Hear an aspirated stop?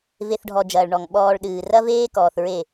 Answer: no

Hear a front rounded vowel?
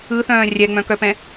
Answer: yes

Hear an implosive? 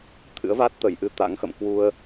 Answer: no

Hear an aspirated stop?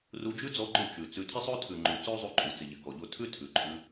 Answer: yes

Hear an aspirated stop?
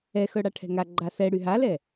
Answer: yes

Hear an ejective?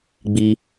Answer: no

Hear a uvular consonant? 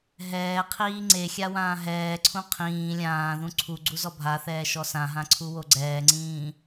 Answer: yes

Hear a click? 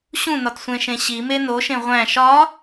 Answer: no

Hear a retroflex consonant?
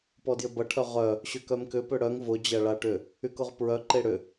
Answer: yes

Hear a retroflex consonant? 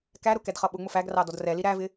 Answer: no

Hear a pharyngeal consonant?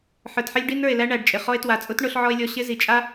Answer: yes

